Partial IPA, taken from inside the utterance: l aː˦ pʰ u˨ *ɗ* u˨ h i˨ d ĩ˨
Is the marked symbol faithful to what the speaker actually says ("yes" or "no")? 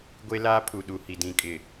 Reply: yes